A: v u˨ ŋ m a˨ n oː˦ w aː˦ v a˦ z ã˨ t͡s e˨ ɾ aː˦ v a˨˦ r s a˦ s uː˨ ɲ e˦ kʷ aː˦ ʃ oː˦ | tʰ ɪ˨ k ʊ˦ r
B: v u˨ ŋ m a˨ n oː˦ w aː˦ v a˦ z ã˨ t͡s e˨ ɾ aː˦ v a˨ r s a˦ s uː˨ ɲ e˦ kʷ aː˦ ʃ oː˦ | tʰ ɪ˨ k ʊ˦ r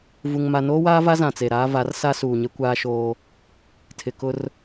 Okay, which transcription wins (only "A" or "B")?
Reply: A